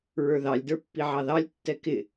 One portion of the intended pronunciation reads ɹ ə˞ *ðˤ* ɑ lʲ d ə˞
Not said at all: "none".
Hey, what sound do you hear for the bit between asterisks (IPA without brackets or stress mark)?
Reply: ð